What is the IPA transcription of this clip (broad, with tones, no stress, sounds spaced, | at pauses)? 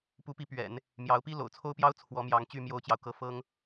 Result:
p u˧˥ p i˧˥ p ɥ ɛ̰˨˩˦ n | m j ɑ˧˥ ʊ̯ p i˥ l o̰˨˩ ʊ̯ t͡sʰ o˥ ʊ̯ p j ɑ˥ ʊ̯ t͡sʰ w ɔ˧˥ m j ɑ˧˥ ŋ t͡ɕ y˥˩ m j o˥ ʊ̯ t͡ɕ j ɑ˨ ʊ̯ k ɤ˥˩ f ɤ˥ ŋ